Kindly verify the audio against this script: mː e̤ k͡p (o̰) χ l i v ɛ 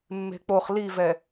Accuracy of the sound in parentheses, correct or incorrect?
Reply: incorrect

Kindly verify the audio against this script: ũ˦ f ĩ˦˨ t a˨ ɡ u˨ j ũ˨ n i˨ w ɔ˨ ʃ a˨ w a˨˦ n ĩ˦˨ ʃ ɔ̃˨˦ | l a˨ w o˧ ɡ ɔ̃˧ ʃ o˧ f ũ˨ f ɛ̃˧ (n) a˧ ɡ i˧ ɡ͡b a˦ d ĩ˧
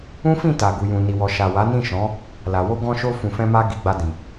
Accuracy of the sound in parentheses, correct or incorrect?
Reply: incorrect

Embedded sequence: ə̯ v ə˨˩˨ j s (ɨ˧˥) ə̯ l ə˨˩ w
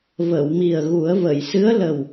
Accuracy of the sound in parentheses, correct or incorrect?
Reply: correct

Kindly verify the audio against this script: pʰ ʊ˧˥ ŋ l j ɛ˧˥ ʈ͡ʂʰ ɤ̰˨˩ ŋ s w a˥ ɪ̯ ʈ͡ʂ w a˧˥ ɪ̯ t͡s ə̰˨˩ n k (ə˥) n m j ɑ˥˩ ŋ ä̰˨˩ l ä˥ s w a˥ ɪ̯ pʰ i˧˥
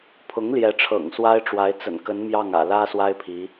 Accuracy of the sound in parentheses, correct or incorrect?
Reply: incorrect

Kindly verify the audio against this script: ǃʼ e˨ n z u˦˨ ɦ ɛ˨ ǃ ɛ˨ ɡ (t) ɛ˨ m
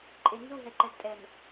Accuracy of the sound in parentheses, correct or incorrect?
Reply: incorrect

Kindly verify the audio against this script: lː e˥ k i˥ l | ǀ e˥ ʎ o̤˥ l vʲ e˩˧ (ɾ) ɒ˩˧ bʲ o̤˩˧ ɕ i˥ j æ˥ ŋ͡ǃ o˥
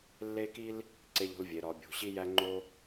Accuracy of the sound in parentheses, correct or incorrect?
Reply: correct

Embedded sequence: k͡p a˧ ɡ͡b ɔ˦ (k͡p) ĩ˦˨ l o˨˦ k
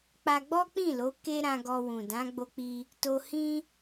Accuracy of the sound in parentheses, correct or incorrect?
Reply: correct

